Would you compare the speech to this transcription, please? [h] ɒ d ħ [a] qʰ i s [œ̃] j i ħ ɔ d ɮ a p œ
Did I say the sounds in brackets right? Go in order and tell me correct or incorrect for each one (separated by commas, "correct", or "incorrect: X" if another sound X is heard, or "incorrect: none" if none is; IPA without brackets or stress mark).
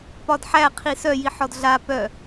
incorrect: p, incorrect: æ, incorrect: œ